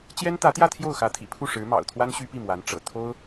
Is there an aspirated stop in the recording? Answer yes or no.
yes